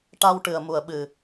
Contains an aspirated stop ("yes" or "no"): no